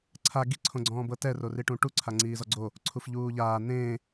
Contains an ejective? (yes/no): no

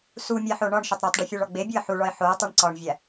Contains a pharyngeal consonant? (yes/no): yes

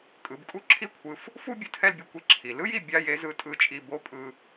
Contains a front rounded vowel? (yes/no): no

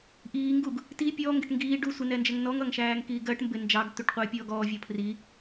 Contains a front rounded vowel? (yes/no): no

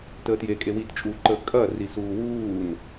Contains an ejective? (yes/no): yes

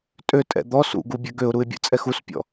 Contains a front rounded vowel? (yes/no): yes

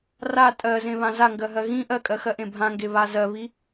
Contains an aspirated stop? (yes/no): no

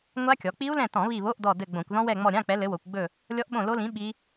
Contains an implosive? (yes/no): yes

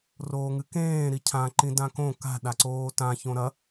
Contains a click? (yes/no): yes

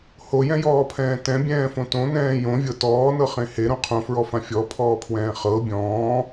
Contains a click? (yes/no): no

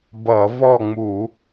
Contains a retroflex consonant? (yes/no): no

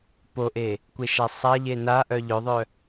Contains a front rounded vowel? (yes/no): yes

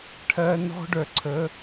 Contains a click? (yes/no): yes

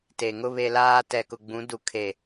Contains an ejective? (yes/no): no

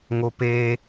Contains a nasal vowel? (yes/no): no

